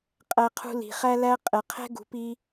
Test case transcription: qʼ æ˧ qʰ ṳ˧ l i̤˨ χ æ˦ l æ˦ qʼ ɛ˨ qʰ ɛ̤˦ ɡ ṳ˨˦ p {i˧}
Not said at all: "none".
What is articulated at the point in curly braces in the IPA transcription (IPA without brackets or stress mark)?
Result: i˧